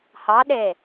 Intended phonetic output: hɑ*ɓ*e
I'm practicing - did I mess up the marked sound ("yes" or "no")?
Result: yes